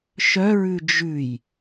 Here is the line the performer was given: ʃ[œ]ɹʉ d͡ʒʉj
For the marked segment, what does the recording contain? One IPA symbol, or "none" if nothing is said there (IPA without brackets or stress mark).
œ